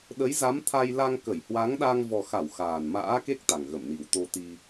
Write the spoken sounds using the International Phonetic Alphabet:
ɗ ə˨˦ j z a˨˦ m t̪ʰ a˧ j l a˧ ŋ k ə˧˩ j h w a˨˦ ŋ ɗ a˧ ŋ v ɔ˨˩ x a˧˩ w x aː˨˩ n m a̰ː˧˥ k e˦˥ k̚ t̪ a˨˩ ŋ ɣ ə˧˩ m n i˨˩ w t̪ o˧ t̪ i˧

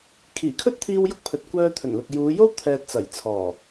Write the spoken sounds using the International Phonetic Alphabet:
kʰ iː˨˩ kʰ ɵ˥ t̚ t̪ʰ iː˧ w j ʊ˥ k̚ pʰ ɵ˨ t̚ kʷ œː˧ t̪ʰ ɵ˨˩ n l ʊ˨ k̚ j uː˨˧ j o˥ w t̪ʰ ɛː˨ t̚ t͡s ɐ˨˩ j t͡sʰ ɔː˨˩

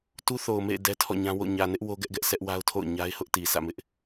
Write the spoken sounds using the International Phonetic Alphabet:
t u˦ θ o˨ ʊ̯ m ḛ˦˨ ɪ̯ d ɛ˦ tʰ ɔ̰˦˨ ɲ ã˦ w o̰˦˨ ɲ ä˨ n ɪ˦ ʔ w o˦ ɡ ɛ˦ ʔ ɡ ɛ˦ ʔ sʰ ɛ˦ ʔ w a˦ ʊ̯ tʰ o̰˦˨ ʊ̯ ɲ a˦ ɪ̯ h ʊ˦ ʔ t i˨ s ä̰˦˨ m ɪ˦ ʔ

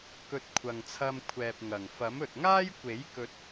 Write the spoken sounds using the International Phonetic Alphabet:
k ɵ˧ t̚ kʷʰ ɐ˨ ŋ t͡sʰ ɐ˧ m kʷʰ ɛː˨ p̚ ŋ ɐ˨˩ ŋ f ɐ˨˥ m ɵ˨ t̚ ŋ aː˥ j kʷ e˨˥ j k ɵ˧ t̚

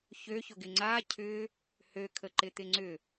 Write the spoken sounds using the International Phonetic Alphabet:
ç ø ç ʊ ɡ ɪ ŋ͡ǀ a cʰ ʏ | h ø kʰ ə ǃ ɪ t̪ ɪ ŋ͡ǀ ʏ

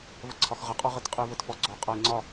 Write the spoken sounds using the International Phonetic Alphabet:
v ə ǀʰ ɒ x ʁ ə qʼ ɒ ʁ ə t qʼ ɨ v ə t f ɔ ɡ͡ǀ ɔ qʼ a ɪ̯ ŋ͡ǀ ɒ

